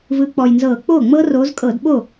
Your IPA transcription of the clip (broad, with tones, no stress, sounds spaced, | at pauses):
v ɯ˨˦ k͡p ɔ˨˩ j n z ɤː˧˩˧ k͡p oː˥˩ ŋ͡m ɤ˦˥ r oː˨˦ z kʼ ɤː˧˩˧ d ɓ o˥˩